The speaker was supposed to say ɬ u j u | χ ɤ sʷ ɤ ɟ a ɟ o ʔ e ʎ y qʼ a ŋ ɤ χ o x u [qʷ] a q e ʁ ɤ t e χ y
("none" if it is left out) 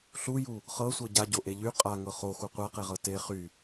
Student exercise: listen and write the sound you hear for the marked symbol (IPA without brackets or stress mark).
qʷ